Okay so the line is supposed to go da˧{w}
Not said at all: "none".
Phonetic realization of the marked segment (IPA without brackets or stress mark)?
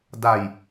j